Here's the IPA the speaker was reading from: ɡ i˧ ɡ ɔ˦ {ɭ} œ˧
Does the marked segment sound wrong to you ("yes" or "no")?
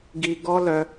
yes